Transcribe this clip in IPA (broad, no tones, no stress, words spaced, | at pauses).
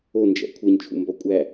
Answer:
ond͡ʒæ̰ kʷʰeɲt͡ʃʰṵmbɒ kʷʼæ